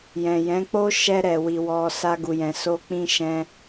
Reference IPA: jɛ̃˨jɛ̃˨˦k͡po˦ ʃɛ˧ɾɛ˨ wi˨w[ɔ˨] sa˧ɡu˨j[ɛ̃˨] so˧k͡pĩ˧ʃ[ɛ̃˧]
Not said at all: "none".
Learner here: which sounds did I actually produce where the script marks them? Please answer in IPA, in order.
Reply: ɔ˨, ɛ̃˨, ɛ̃˧

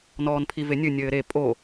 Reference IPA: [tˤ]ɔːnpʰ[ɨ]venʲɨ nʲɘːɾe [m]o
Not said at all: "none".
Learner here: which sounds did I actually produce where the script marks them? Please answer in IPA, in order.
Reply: n, i, pʼ

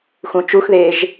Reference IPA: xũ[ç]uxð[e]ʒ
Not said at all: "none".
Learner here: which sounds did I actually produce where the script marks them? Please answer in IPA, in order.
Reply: t͡ʃ, eː

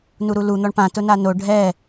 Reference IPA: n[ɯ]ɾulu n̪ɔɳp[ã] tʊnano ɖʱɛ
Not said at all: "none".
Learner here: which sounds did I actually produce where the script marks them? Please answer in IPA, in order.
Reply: u, ã

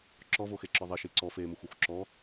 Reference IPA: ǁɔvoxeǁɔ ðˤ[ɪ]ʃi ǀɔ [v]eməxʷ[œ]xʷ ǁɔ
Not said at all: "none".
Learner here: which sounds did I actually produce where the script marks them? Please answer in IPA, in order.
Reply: ɪ, f, œ

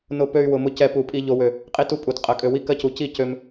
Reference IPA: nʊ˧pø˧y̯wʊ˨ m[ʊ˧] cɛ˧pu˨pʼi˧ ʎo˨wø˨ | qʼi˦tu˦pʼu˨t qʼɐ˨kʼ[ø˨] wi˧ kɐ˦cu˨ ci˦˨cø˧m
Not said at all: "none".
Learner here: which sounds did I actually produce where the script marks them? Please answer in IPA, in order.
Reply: ʊ˧, ø˨

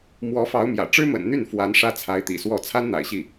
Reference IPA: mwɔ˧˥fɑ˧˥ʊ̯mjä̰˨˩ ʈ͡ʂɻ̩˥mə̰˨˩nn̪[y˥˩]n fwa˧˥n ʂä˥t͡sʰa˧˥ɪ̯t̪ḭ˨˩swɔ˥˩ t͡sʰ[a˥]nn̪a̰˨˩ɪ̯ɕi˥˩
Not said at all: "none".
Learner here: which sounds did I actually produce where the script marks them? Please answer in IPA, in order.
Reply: y˥˩, a˥

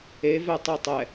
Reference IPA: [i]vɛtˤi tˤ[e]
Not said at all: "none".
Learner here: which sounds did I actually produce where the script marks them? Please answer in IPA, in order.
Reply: e, ɛ

